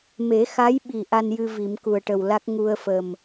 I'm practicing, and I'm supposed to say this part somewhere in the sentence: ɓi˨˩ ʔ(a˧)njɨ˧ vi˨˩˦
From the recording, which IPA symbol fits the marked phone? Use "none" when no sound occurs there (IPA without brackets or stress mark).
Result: a˧